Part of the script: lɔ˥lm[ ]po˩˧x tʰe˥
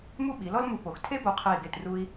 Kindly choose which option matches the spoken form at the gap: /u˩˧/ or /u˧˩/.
u˧˩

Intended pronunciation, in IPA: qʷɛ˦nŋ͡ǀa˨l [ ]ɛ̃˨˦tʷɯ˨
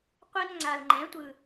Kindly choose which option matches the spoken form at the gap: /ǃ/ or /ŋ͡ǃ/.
ŋ͡ǃ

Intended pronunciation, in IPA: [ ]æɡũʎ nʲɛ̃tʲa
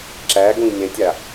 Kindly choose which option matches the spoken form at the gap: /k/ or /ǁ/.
ǁ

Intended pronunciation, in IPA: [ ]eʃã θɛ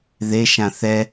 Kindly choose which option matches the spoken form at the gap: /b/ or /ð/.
ð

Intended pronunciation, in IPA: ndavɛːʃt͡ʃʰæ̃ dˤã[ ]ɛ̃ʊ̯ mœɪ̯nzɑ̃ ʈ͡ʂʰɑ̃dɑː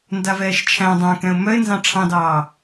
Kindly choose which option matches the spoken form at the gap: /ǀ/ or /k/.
k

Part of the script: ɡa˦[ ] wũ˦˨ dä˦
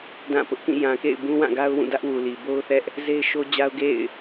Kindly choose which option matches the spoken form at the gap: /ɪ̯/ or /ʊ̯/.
ʊ̯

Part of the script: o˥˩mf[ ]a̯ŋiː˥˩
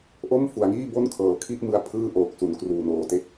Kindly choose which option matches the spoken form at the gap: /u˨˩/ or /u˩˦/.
u˩˦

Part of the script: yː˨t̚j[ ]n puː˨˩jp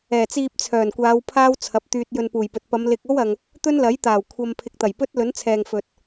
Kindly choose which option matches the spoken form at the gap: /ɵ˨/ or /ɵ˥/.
ɵ˨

